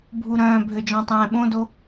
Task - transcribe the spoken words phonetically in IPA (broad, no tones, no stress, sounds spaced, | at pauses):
bʱ u ɾ œ̃ː bʱ ø d͡ʒ ɔ̃ tˤ ɛ̃ː ɓ õ d o